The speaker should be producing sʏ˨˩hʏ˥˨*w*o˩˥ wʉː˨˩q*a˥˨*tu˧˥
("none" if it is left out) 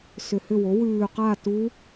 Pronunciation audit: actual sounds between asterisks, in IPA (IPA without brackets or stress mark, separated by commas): w, a˥˨